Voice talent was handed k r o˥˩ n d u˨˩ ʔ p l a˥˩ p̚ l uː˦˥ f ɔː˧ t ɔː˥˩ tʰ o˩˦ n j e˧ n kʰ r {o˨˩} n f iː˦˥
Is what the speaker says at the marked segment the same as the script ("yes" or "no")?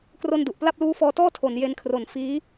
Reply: yes